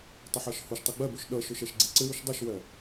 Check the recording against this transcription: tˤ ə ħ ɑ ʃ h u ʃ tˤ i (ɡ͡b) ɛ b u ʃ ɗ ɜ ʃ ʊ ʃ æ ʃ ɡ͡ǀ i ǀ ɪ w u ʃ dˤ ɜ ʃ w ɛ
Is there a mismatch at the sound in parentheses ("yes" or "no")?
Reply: no